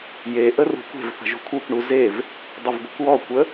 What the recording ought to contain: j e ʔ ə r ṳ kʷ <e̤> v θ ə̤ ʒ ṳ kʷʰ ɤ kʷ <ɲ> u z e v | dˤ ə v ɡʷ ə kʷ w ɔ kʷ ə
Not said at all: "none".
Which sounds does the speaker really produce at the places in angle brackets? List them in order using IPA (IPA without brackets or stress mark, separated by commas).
e̤, ɳ